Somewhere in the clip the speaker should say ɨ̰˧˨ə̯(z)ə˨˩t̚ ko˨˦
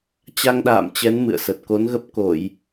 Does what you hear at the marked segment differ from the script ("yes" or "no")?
yes